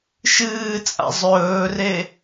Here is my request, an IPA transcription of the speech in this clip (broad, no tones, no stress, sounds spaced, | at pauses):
ʃ ɨː t͡sʼ a̰ zˤ ɵː r e